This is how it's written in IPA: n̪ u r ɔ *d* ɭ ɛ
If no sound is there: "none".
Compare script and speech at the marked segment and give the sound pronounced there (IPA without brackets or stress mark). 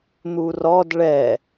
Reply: d